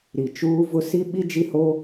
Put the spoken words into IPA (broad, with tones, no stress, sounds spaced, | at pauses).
ɾ i˨ t͡ʃ uː˦ v ʊ˦ s i˦ ɓ i˦ d͡ʒ i˦ h o˦